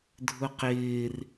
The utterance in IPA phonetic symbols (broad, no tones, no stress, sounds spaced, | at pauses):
dʱ ʊ q ɪː r